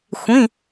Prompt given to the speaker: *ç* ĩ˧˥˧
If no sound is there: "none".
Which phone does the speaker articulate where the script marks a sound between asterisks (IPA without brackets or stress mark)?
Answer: xʷ